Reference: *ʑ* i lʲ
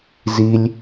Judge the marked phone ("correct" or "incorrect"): incorrect